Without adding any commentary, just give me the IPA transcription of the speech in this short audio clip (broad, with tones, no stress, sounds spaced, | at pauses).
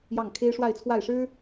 j ɑ˥˩ ŋ kʰ e˥ ɪ̯ ʂ w a˥˧ ɪ̯ t͡sʰ w a˥˩ ɪ̯ ʂ ɻ̩˥